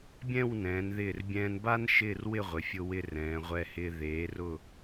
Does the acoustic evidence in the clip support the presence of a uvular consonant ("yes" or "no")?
yes